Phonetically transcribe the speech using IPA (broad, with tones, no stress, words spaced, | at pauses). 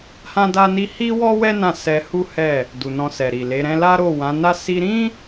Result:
hã˦da˦ni˦ hi˦wɔ˦wɛ˦ nã˦˨sɛ˧hu˦hɛ˦˨ | du˨nɔ̃˧sɛ˨ ɾi˨le˨˦ɾɛ̃˦ la˦ɾo˦˨wã˨˦na˦ si˧ɾĩ˦